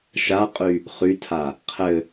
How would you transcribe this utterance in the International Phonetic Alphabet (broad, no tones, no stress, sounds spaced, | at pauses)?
ʃ a qʼ y | χ y tʰ a | qʰ ɘ